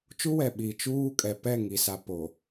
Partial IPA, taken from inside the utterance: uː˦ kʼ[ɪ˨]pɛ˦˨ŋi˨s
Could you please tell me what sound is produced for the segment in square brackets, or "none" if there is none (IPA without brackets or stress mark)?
ɛ˨